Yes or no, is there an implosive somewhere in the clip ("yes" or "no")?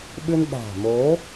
yes